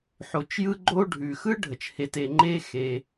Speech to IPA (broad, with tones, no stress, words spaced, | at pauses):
ħo˩t͡ʃjɯ˦ ɡ͡ǃo˦ɖʱʉ˩xɯ˥ ɖʱə˩t͡ʃhe˨te˨ ŋ͡ǃe˦ xe˨